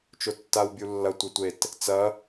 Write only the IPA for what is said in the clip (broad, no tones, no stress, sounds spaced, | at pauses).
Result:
t͡ʃ o tː a w bʲ u lː ɐ tʷ e tʷ e t | t͡s ɐ